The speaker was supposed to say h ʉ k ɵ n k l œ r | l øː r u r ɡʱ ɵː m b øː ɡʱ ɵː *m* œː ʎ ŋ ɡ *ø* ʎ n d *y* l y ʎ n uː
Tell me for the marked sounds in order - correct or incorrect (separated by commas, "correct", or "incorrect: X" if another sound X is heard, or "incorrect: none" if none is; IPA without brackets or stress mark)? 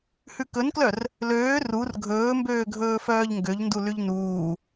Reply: incorrect: f, correct, incorrect: u